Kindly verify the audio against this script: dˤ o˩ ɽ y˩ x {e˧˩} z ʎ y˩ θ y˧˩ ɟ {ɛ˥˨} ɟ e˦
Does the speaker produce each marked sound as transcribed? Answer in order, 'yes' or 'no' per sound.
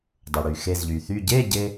yes, no

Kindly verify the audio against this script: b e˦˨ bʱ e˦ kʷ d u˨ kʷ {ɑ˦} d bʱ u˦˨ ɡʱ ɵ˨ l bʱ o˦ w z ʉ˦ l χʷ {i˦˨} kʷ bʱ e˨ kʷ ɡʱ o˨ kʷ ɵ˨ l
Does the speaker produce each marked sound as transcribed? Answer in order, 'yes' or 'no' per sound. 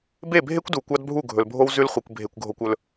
yes, no

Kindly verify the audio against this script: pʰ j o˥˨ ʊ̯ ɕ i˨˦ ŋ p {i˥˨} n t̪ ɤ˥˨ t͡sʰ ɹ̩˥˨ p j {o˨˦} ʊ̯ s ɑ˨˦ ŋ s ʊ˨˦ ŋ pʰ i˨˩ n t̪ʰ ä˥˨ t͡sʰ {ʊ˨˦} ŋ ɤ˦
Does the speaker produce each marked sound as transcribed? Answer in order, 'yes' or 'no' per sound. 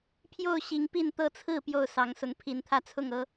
yes, no, no

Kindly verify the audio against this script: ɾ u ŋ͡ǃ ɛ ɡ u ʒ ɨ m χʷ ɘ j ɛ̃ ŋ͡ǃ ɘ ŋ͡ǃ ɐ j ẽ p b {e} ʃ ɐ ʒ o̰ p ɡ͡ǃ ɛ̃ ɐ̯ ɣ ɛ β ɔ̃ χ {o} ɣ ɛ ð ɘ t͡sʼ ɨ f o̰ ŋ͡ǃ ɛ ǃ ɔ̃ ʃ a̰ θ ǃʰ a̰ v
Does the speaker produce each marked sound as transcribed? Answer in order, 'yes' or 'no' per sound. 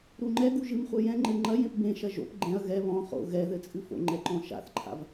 no, no

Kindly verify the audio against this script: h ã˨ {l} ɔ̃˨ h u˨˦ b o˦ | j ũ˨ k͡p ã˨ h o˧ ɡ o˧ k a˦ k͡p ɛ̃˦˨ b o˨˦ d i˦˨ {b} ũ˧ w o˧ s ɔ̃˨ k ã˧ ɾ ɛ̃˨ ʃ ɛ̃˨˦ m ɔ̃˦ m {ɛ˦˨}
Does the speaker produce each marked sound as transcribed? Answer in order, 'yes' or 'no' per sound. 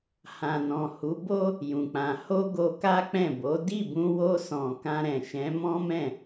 no, yes, no

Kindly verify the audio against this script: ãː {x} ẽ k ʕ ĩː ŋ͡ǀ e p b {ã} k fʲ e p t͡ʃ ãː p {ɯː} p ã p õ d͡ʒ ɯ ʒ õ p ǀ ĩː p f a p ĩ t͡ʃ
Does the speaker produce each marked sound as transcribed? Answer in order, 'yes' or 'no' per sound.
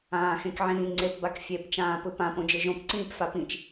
yes, no, no

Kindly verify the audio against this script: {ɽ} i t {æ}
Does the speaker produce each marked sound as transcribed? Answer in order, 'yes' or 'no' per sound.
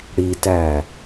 yes, yes

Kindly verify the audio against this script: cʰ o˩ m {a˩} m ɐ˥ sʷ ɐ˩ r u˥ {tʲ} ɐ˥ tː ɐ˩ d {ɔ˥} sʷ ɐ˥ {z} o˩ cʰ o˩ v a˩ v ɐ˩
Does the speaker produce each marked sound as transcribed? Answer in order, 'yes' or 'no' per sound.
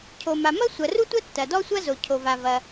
yes, no, yes, yes

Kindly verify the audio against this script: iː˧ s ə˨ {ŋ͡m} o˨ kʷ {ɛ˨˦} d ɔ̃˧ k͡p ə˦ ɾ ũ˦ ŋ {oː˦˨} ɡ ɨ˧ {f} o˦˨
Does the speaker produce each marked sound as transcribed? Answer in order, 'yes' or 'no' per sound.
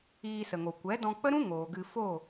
no, yes, no, yes

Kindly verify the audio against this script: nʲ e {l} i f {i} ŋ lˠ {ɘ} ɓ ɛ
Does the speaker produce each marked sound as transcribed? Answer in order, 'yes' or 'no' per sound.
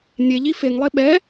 no, no, no

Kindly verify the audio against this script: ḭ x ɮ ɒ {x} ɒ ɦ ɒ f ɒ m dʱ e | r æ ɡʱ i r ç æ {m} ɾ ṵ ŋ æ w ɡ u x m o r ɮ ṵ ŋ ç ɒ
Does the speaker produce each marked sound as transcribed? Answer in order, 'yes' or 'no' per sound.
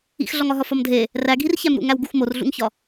no, yes

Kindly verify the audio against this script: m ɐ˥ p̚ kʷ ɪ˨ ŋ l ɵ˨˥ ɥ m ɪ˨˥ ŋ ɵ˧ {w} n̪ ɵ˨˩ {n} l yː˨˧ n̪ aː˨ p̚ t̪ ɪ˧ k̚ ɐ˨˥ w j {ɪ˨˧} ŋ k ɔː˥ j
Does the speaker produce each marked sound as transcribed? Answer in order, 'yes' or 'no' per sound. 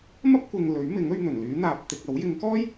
no, yes, yes

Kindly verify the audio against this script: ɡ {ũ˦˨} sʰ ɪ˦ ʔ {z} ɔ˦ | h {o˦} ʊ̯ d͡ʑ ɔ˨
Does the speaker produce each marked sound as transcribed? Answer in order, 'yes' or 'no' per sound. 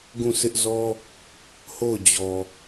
yes, yes, no

